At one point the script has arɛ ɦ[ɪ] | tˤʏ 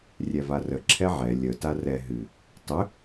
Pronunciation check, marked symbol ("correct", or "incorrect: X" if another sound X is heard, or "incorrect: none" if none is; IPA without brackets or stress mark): incorrect: ɨ